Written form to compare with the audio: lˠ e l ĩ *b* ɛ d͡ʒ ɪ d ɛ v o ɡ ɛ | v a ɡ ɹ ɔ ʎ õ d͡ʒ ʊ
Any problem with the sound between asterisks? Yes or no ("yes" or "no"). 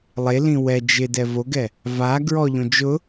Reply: yes